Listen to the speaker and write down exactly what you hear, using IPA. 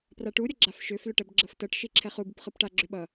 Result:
p r a ʈ u ɾʲ ʌ ɡ͡ǁ a f ʃ ʏ f l ʏ ʈ ɛ b ɡ͡ǁ ɤ f t ɤ ʈ ʃ i ǁʰ ɛ χ u b ɯ p χ ɯ p ʈ a ɡ͡ǁ ʏ ɓ ʌ

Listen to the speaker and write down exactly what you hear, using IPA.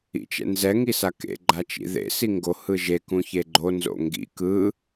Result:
ḭ t͡ʃ ɛ̰ n z ɛ ŋ i s a k ḛ ɡ͡ǃ a t͡ʃ ḭ ð ḛ s i ŋ ɡ o h ɯ ʒ e k ũ ç e ɡ͡ǃ o n z o̰ ŋ ɡ ḭ k ɯ

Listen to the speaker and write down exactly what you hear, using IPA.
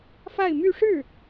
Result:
f a˥˧ ɪ̯ m y˥˧ ʂ ɻ̩˥˩

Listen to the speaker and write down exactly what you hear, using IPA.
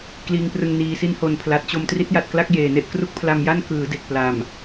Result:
k l iː˧ ŋ p r ɯ˧ ŋ n iː˧ s i˧ n h o˨˩ n pʰ l a˨˩ t̚ t͡ɕ o˧ m t r i˦˥ t̚ j a˨˩ t̚ k l a˥˩ k̚ j eː˨˩ n e˥˩ ʔ k r u˦˥ k̚ pʰ l a˧ m j a˥˩ n k ɯː˩˦ d e˨˩ k̚ p l aː˨˩ m

